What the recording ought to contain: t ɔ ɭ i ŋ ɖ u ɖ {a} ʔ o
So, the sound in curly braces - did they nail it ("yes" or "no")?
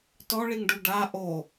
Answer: yes